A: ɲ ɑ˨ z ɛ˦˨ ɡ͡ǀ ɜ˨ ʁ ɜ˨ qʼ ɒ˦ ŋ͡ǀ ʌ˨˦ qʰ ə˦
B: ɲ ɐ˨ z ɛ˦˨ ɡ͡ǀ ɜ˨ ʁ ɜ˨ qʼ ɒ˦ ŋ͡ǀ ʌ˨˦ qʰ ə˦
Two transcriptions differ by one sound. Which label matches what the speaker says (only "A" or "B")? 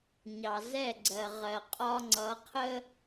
A